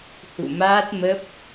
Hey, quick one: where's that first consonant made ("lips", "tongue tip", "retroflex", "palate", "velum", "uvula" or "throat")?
throat